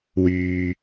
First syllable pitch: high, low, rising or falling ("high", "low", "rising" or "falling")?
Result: low